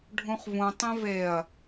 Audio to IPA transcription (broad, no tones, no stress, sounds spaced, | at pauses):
ɖʱ ũ χ v ũ tˤ ẽ v e ɐ̯